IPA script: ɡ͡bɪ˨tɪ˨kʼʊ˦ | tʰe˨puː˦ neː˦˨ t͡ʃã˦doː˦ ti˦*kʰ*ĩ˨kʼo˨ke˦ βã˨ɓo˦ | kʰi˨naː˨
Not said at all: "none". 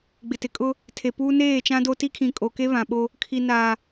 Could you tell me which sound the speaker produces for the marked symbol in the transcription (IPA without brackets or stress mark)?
kʰ